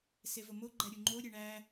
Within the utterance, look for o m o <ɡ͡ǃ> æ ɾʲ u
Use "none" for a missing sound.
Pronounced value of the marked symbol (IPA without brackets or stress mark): ɡ͡ǃ